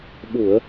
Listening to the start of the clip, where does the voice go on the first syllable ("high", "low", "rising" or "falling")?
low